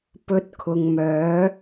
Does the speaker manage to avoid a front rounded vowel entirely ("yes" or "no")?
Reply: no